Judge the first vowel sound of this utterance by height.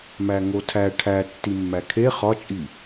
low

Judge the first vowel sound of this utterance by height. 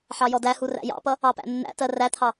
low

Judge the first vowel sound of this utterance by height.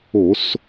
mid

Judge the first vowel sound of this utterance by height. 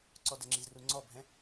mid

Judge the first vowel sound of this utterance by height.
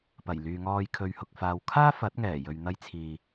low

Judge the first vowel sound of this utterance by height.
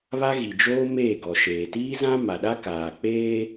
low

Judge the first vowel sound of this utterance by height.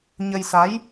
mid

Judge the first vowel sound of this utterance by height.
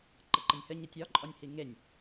mid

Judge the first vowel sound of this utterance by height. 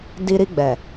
high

